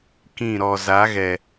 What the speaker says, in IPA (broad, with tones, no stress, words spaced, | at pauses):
kĩ˦˨ ɾɔ˨za˨˦ ɣɛ˨